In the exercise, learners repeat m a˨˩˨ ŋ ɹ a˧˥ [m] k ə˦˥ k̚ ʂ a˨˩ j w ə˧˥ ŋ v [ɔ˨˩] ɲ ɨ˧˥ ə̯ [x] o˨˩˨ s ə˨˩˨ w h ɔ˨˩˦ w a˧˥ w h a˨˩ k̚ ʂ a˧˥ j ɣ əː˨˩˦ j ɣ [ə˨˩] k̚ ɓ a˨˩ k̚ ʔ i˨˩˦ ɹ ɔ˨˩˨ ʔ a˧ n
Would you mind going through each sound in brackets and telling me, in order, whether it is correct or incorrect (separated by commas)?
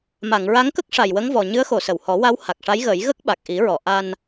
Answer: incorrect, correct, correct, incorrect